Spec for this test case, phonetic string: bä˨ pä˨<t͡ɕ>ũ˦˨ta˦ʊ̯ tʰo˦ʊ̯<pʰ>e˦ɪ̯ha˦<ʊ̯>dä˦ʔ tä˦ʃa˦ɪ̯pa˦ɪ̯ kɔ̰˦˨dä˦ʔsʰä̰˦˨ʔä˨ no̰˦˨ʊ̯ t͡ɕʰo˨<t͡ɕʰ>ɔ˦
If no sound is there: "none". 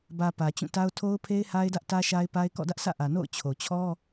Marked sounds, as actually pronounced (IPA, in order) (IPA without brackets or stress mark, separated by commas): t͡ɕ, pʰ, ɪ̯, t͡ɕʰ